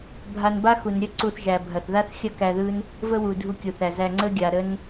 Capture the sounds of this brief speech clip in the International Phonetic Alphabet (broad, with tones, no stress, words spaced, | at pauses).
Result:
bʱa˧n ba˦xu˨n ɾʲə˦ǀu˧θʒæ˨bʱɐ˨θ ða˦θxʲɐ˦kæ˧ ðɯ˦n | və˦wu˨dʱu˧kʲu˨ θæ˨zæ˧ ŋ͡ǀə˦ɡʲa˨ ɾə˦n